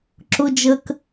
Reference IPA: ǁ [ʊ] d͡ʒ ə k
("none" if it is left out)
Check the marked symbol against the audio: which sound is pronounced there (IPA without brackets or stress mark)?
ʊ